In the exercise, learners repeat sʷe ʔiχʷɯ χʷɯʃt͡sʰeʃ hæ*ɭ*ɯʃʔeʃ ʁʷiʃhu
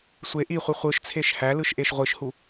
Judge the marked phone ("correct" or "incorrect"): incorrect